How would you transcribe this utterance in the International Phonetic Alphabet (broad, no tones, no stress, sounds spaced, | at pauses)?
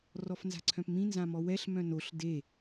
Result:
r ɔ f n z a̤ ǀʰ œ̃ p m ĩ n z ã m ɔ w ɛ ɬ m œ̃ n o ɬ d e